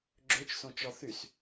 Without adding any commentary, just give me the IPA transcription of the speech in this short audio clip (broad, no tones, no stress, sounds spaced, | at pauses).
ɡ͡ǁ ø t͡ʃ s õ t͡ʃ ɔ θ y s